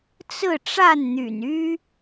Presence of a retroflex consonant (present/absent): present